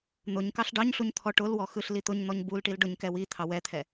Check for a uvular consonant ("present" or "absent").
absent